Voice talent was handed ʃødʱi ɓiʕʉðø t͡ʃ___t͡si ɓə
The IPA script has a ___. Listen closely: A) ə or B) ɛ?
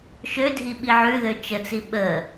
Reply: A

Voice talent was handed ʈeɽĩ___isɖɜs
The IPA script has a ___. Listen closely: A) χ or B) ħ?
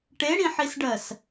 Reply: B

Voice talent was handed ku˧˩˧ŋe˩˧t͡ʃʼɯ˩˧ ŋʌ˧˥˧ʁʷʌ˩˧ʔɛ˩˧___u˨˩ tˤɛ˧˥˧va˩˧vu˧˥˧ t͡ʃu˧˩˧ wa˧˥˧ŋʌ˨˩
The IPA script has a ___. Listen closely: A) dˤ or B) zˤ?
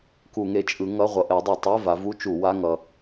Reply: A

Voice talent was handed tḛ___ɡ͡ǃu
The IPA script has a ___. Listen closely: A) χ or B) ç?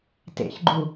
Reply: B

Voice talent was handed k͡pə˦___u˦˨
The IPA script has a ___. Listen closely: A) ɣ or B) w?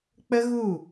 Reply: A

